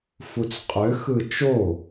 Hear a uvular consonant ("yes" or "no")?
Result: yes